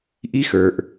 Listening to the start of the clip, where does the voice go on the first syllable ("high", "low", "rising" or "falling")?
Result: high